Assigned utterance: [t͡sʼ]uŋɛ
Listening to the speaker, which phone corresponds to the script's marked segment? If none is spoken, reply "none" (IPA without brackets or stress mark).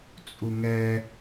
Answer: t͡sʼ